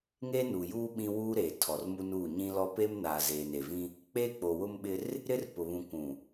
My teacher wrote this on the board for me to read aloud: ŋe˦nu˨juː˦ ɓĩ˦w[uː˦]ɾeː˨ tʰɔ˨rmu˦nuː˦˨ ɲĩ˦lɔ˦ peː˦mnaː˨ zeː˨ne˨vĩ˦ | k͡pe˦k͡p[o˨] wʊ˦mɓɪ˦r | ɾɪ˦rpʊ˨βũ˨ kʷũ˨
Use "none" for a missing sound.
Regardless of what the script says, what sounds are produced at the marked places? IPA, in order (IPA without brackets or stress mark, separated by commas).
uː˦, o˨